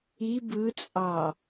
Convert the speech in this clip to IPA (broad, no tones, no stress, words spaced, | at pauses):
i bɯt͡sʼɑ